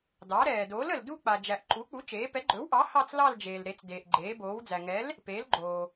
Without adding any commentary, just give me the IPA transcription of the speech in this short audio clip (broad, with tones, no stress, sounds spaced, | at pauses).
d ɑ˩˥ ɾ ɛː˩ d oː˩˥ l ə˩ l d u˥˧ k͡p a˩ d͡ʒ æ˩ ʔ ǃ u˩˥ k͡p u˩˥ t͡ʃ eː˩˥ p ɛ˩˥ ɡ͡ǃ ɵ˩˥ w ʔ ɑ˩˥ h ɑ˥˧ t͡s l ɑ˥˧ l d͡ʒ eː˩ l ɾ e˩˥ t͡s d eː˩ ʔ ɡ͡ǃ eː˩˥ b oː˩˥ w d͡z æ˩ ŋ ɛ˩˥ l | p eː˩˥ l ɡ͡ǃ oː˩